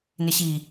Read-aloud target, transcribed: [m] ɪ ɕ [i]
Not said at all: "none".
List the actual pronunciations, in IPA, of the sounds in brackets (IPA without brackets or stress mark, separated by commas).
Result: n, i